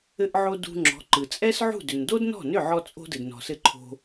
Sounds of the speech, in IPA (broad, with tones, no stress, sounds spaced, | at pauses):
ɘ˧ ʔ ʕ o˧ d ṳ˧ ŋ͡ǁ ɔ̤˩˥ ǃ ɯ˩ t͡sʼ ɛ˥ s ʕ ṳ˥˩ d ʏ˩ n d o˥ d n ɔ̤˥˩ n ʏ˥˩ ʕ ɔ˥ t͡sʼ o̤˥ d ɘ˩ d n ɔ̤˩ s ɘ˧ ǃʰ o̤˧